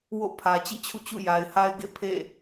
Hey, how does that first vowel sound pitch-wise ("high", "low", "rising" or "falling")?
falling